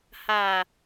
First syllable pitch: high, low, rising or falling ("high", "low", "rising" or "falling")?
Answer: low